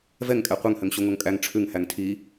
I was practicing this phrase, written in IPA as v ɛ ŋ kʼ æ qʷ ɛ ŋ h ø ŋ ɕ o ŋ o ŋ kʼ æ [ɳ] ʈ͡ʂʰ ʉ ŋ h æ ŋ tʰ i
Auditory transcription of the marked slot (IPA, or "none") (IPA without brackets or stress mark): ŋ